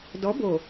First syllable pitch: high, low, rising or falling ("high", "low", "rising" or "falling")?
rising